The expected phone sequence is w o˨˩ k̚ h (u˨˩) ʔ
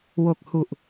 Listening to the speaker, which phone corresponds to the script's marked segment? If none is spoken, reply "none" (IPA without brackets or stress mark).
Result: u˨˩